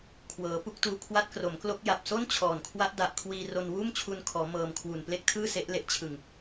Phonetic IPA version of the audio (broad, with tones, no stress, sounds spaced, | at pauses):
kʰ w ɤː˩˦ p u˥˩ k̚ t uː˧ kʰ w a˦˥ t̚ k r o˩˦ m k l o˦˥ k̚ j a˨˩ p̚ s o˥˩ n t͡ɕʰ ɔː˨˩ n kʰ w a˦˥ ʔ d a˨˩ ʔ kʰ w iː˧ r o˧ n w uː˥˩ m t͡ɕʰ u˧ n kʰ ɔː˩˦ m ɤː˧ m kʰ w u˨˩ n p l e˥˩ k̚ tʰ ɯː˥˩ s e˦˥ ʔ l e˦˥ ʔ t͡ɕʰ ɯ˨˩ ŋ